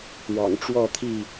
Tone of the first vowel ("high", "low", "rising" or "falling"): low